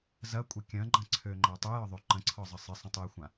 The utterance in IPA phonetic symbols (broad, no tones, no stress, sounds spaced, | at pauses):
z ɐ kʷʼ ɪ kʲ ɐ̃ ɡ͡ǃ ɐ̃ ǀʰ ø ŋ͡ǃ a tˤ ø j ɒ ðˤ ø ǃ ə̃ ǀʰ ɒ zˤ ə sˤ ɪ sˤ ə̃ tˤ ø j xʷ ã